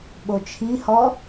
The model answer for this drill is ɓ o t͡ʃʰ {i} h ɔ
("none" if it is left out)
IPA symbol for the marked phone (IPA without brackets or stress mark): i